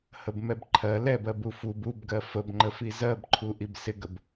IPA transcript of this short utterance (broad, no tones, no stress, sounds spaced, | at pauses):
h ə b m ɛ b ǃʰ ɜ l ɛ b ɜ b u f u b u b ɡ ɜ f ə b ŋ͡ǃ ə f i z ɜ b ǃʰ u ʔ i b s ɪ ɡ ə b